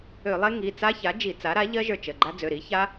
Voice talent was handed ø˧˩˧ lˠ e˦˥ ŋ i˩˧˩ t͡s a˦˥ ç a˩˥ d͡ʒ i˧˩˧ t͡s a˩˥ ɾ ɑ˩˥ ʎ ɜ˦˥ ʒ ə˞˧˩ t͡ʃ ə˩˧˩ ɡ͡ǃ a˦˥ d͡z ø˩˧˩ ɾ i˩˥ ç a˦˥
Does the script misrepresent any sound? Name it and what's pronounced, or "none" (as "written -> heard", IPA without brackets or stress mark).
ɑ˩˥ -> a˩˥